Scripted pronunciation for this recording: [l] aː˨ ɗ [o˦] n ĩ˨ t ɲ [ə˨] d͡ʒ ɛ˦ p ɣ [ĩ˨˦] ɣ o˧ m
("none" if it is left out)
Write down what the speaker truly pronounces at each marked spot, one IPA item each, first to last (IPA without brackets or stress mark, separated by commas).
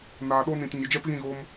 n, o˦, ə˨, ĩ˦˨